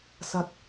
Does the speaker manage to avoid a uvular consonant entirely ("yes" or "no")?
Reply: yes